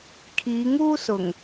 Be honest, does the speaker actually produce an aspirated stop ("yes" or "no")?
yes